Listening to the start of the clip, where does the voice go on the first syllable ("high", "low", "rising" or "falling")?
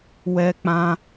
high